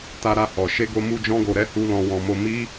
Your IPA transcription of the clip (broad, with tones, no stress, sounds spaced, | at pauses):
t a˧ ɾ a˧ h ɔ˨ ʃ e˧ ɡ o˧ m u˧ d͡ʒ ɔ̃˦ ɡ o˧ ɾ ɛ˦ h u˦ l ɔ̃˧ w ɔ̃˧ m o˧ m i˦